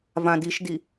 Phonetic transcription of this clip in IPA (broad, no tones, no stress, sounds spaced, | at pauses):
v ã d i ʃ d i